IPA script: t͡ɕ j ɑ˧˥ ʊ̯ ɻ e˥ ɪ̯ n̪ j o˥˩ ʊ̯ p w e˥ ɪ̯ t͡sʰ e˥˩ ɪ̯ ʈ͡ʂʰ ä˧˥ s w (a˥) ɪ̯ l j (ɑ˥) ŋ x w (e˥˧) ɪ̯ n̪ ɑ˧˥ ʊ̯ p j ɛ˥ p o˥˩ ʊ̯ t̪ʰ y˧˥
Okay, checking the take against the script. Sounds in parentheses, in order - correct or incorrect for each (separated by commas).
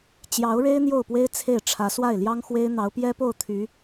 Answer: incorrect, correct, incorrect